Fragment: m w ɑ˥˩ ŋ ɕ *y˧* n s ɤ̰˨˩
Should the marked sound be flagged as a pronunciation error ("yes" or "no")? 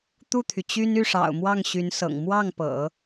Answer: yes